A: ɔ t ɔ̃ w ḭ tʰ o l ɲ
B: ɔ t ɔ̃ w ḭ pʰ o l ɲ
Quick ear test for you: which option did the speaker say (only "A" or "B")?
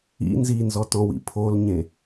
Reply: B